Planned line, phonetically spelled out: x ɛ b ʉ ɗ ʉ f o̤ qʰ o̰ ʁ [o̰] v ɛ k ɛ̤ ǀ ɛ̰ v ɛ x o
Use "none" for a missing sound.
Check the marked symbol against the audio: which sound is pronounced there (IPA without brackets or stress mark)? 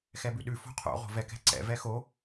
o̤